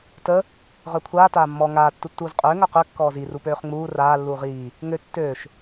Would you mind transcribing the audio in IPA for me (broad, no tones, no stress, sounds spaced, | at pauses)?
t ə | ʁ œ kʷʰ aː t aː mː ɔ ŋ aː tː u tː uː z qʼ øː ŋ œ q ø kː ɔː z i r u p øː χ ŋ͡m uː r aː lː uː ʁ iː | ŋ ø tː øː ʃ